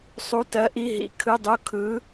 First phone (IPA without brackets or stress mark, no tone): sˤ